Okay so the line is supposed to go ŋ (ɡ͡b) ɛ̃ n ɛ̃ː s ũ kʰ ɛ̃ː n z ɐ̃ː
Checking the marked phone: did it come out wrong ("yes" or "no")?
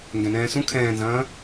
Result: yes